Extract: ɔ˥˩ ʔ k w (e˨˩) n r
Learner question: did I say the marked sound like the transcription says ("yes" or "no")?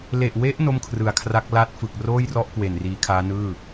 yes